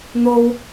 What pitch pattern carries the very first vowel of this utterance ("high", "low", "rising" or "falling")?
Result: high